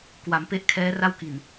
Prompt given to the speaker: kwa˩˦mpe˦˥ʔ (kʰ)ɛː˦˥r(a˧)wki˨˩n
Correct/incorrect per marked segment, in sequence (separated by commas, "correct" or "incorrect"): correct, incorrect